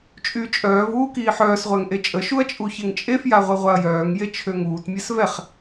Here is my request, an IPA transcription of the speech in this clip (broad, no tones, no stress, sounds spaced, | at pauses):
t͡ʃʼ y t͡ʃʼ œː v uː k iː ħ œː s ʁʷ ɛ ŋ ʔ e t͡ʃʼ ə ʃ u ɐ̯ t͡ʃʼ u ç e ŋ t͡ʃʼ e f j a ʁʷ e ʁʷ a ɐ̯ j œː ŋ j e t͡ʃʰ ø ŋ uː t mʲ ɛ s v ɛ χ